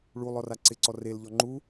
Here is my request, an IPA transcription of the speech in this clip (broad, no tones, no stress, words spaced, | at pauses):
ɭulˠɔ raǀɪǀɔ relʎɔ ŋ͡ǃu